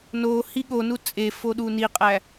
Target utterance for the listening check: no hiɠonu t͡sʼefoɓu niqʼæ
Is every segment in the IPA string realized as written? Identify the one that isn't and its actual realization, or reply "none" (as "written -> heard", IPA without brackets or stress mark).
ɓ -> ɗ